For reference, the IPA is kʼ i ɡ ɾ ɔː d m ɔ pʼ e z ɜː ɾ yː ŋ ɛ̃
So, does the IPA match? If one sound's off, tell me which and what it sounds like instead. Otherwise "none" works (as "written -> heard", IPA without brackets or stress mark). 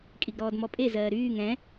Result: none